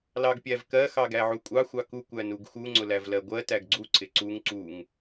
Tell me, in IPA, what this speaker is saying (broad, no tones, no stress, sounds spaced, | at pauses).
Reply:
l ɑ ɡ pʲ æ v k ɜ x ɑ ɡ æ ʕ u kʷʼ ɑ xʷ ɑ k u kʷ æ n u ɡ x u ŋ͡ǀ ʊ l æ v l ɜ ɡʷ ɜ t æ ɡ ɡ͡ǀ u ǀ ɪ ǀ u ŋ ǀ u ŋ